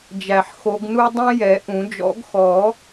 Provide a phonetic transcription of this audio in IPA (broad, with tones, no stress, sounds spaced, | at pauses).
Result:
d͡ʒ æ˨˩ ħ x o˨˦ ɡ n u˦˥ dˤ ĩ˦˥ j ɛ˨˩˦ ʔ ũ˨˩˦ d͡ʒ ɔ̰˨˩˦ ɡ x ɔ˨˩˦